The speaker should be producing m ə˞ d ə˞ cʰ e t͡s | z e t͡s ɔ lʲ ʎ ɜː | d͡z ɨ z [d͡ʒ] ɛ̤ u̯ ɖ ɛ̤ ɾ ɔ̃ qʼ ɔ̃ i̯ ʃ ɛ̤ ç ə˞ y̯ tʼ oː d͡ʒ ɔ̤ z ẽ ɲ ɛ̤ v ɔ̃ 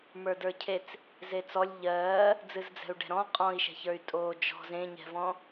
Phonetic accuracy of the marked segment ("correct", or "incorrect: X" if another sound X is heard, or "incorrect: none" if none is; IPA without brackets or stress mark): incorrect: d͡z